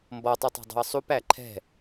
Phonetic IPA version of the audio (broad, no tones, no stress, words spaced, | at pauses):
mbɔtˤɯtˤi̤ dˤṳə̯sˤupæ ǃʰɛ̤